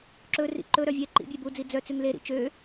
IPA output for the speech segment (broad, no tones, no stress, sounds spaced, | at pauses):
ǁ ɵ r ḭ ǃ ɵ ɾ œ vʲ ɛ ǃ ḭ bʲ e b u d͡z i d͡z œ t͡s ʉ ŋ l e ɾ ḭ t͡ʃ ø